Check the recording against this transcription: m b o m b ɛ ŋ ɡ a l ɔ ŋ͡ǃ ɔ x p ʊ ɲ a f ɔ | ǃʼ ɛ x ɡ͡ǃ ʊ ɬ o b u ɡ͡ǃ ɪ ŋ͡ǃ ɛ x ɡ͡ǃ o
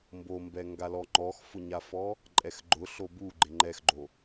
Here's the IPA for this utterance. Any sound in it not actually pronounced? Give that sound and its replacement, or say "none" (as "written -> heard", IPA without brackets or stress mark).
p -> f